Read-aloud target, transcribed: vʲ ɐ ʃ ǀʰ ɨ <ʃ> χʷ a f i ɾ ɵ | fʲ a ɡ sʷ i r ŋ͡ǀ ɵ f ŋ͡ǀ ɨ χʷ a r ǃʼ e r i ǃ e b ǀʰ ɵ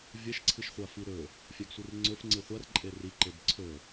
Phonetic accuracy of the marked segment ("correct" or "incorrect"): correct